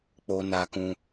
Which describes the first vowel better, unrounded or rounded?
rounded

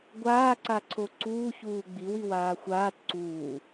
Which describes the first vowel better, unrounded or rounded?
unrounded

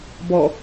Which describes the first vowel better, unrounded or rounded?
rounded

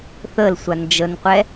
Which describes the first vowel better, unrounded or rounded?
unrounded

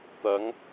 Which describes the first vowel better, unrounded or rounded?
unrounded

